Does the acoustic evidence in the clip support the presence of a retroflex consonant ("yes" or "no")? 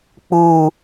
no